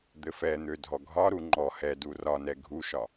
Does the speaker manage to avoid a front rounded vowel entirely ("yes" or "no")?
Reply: no